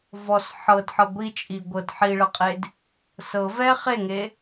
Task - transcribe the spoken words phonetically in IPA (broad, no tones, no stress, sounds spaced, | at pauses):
v ɔ s ħ ɤ d ħ ɤ ɡʷ i t͡ʃʼ i ɡʷ ɤ d ħ i ɭ ɤ qʼ e d | s ɤ v ɛ χ e ŋ e